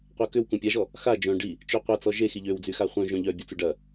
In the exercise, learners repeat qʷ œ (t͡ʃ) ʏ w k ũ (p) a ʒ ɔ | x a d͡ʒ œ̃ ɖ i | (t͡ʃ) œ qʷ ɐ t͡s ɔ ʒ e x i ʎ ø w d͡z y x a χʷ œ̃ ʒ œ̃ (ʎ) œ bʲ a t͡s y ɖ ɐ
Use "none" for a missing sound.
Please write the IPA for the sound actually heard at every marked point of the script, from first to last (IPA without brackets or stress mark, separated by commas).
k, pʲ, t͡ʃ, ʎ